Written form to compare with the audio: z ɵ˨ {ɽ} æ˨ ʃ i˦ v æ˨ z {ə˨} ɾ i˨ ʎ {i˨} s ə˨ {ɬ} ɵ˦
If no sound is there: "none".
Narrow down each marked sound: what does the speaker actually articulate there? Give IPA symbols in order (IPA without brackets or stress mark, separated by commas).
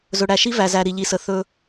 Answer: ɽ, æ˨, i˨, θ